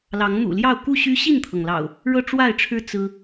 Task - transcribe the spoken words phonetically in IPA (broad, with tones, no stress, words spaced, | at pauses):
lɑ˨˦ŋn̪ṵ˨˩ljɑ˥˨ʊ̯ ku˥˨ɕy˦ ɕi˥˨nt̪ʰɤ˩ŋlɑ̰˨˩ʊ̯ | ɻɤ˥˨ʈ͡ʂwa˥˨ɪ̯ʈ͡ʂʰɻ̩˦ t͡sɹ̩˦